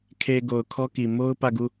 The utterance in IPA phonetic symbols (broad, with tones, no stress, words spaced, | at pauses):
kʰe˨ ɡo˨ʊ̯kʰɔ˦ki˨ mo˦ʊ̯ pä˦˨ɡu˦˨